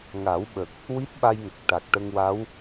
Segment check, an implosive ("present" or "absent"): present